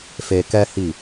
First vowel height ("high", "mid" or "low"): mid